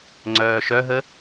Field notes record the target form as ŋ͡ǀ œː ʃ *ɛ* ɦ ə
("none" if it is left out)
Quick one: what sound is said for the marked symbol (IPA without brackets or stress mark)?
œ